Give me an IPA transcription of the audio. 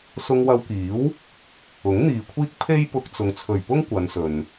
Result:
s ʊ˧ ŋ w ɐ˧ w k iː˨˥ w | ʊ˨˥ ŋ n̪ iː˨ kʷʰ iː˥ k̚ pʰ e˥ j p ʊ˧ k̚ t͡s ʊ˨ ŋ t͡sʰ ɵ˨˩ ɥ p ʊ˥ ŋ kʷ ɐ˨˧ n s ɵ˨ n

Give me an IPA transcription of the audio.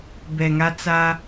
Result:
b ɛ˨ ŋ a˦ t͡s a˦

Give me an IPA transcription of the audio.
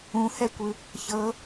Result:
ũ h ɛ kʷ ɯ | ç ɤ

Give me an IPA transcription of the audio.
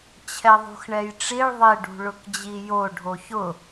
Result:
t͡ɕʰ ɛ ðˤ ṳ x ɳ ɛ j ʈ͡ʂ i ɭ ðˤ e ɖ ṳ ɭ ʊ k d͡ʑ i j o ɖʱ o ç ʊ

